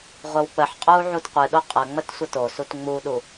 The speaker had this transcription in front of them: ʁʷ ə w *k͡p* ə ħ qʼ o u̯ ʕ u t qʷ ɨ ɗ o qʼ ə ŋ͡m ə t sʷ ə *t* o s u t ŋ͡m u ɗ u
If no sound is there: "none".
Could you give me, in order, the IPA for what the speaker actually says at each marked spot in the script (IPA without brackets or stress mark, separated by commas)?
k͡p, t